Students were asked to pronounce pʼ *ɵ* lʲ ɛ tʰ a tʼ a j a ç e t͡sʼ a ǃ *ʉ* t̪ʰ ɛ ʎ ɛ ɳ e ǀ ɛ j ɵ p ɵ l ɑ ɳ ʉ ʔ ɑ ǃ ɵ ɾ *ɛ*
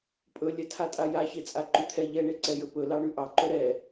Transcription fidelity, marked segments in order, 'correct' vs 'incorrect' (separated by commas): correct, correct, correct